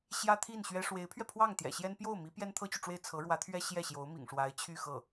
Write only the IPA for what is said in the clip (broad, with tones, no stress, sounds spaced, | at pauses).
ɕ j ä˥ t̪ʰ i˥˩ n ɕ ɥ ɛ˥ ʂ w e˧˥ ɪ̯ pʰ ɥ ɛ˧ pʰ w ɑ˥˩ ŋ t̪ j ɛ̰˨˩ ɕ j ɛ˥ n p j o˥˩ ʊ̯ m i˧˥ p j ɛ˥ n t̪ʰ ɤ˥ t͡ɕ y˨ ʈ͡ʂ w e˥˩ ɪ̯ t͡sʰ ɤ˧˥ ɻ w ä˧˥ t̪ʰ ɥ ɛ˥ ɕ j ɛ˥˩ ɕ j o˧˥ ʊ̯ m ḭ˨˩ ŋ ʂ w a˧˥ ɪ̯ t͡ɕʰ y˥˧ x ɤ˥˩